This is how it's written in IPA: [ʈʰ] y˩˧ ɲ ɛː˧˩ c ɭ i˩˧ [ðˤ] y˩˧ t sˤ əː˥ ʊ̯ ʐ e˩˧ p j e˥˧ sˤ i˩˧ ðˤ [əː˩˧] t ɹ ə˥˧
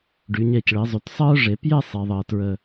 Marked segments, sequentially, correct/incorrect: incorrect: ɖ, incorrect: zˤ, incorrect: əː˧

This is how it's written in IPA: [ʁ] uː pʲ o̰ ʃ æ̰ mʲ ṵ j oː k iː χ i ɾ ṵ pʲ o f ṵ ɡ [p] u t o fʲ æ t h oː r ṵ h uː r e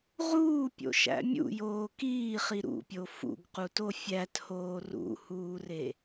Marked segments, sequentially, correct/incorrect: correct, incorrect: q

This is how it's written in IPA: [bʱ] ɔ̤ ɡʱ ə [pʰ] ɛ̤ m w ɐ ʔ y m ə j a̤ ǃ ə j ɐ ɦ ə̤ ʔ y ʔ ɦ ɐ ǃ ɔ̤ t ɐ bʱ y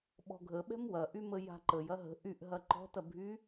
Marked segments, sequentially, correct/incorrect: incorrect: ɓ, incorrect: ɓ

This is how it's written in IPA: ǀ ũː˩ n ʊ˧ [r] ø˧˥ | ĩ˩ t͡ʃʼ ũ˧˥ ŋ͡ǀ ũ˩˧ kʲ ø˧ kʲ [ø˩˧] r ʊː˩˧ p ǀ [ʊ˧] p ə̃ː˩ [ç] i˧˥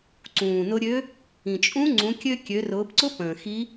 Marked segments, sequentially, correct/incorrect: incorrect: ɾʲ, correct, incorrect: ʊ˧˥, incorrect: x

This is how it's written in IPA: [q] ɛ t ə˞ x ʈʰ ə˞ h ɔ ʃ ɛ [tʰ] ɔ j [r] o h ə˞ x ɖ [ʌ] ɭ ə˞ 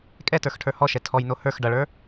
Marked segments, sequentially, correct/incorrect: incorrect: kʼ, correct, incorrect: n, correct

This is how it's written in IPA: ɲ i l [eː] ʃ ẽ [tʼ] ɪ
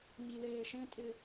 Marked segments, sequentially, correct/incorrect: correct, correct

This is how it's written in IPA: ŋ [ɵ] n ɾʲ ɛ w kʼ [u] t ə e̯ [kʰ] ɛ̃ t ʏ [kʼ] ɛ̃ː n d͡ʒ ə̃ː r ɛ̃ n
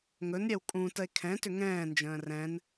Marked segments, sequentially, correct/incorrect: correct, incorrect: ũ, correct, incorrect: ŋ

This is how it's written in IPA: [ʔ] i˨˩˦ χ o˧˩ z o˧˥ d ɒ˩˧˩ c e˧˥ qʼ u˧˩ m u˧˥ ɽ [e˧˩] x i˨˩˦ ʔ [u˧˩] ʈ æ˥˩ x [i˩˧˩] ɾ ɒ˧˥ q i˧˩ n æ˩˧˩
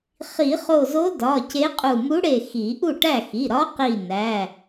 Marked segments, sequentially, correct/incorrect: incorrect: χ, correct, incorrect: u˥˩, correct

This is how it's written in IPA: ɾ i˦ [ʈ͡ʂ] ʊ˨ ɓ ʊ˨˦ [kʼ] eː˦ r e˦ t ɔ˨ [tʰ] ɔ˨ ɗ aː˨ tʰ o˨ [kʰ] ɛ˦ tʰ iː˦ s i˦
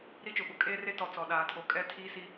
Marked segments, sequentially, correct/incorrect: incorrect: t͡ʃ, correct, incorrect: t͡s, incorrect: kʼ

